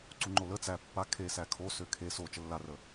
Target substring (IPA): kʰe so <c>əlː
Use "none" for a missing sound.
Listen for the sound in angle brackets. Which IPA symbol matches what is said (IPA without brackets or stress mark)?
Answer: t͡ʃ